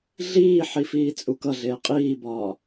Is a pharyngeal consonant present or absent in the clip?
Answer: present